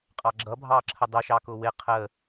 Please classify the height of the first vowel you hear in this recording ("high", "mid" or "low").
low